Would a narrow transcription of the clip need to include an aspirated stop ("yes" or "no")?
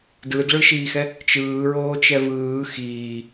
no